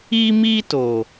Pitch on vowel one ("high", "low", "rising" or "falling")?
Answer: high